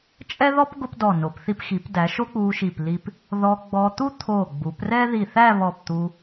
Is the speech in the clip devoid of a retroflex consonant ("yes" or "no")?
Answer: yes